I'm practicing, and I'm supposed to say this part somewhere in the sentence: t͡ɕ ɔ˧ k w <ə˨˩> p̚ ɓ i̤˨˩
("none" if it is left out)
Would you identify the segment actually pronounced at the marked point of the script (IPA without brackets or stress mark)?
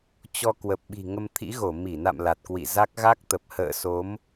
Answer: ə˨˩